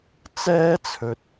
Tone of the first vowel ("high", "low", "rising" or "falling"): high